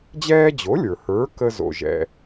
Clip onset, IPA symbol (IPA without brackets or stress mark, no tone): d͡ʑ